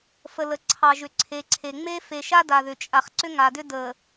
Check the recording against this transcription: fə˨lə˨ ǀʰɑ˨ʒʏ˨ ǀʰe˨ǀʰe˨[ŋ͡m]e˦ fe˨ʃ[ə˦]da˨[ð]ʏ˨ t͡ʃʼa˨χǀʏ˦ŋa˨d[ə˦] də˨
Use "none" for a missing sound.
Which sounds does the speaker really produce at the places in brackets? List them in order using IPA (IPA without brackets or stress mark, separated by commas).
ŋ͡m, a˦, ð, ʏ˦